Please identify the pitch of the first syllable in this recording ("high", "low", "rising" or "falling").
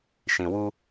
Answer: low